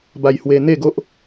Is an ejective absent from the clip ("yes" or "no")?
yes